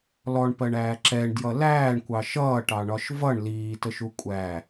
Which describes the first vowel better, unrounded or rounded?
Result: rounded